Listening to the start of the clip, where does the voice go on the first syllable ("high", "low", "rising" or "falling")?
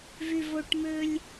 low